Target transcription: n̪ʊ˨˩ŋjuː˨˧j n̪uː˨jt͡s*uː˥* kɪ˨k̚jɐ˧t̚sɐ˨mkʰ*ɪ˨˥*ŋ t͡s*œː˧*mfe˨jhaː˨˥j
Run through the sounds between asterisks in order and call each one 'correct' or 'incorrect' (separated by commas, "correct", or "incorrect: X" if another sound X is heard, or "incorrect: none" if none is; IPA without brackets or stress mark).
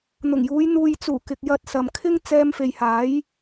incorrect: uː˨˩, incorrect: ɪ˥, incorrect: ɛː˧